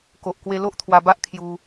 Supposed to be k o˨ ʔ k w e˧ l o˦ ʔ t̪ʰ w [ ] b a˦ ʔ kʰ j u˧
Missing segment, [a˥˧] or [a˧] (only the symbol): a˧